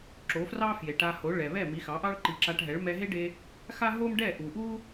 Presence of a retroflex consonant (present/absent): present